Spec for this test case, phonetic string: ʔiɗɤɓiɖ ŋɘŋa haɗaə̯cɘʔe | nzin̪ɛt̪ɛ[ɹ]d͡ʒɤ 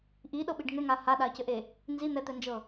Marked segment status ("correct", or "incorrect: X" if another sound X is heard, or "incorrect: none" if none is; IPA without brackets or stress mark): incorrect: n